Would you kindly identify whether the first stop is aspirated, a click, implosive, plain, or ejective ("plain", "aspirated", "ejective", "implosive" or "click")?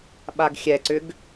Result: implosive